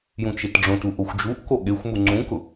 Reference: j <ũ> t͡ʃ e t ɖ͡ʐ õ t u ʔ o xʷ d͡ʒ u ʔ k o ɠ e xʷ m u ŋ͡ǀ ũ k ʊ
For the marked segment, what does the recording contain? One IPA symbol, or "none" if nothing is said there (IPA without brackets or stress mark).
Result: ũ